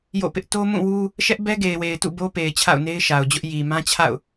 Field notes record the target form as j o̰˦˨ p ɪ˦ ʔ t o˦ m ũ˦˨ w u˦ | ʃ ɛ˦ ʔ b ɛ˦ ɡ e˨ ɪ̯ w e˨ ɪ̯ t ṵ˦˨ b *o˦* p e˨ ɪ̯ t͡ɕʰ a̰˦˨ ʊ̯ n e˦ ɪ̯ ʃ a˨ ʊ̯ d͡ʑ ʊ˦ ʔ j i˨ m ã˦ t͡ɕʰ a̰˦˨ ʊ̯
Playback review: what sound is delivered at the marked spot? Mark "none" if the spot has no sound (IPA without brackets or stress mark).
o˦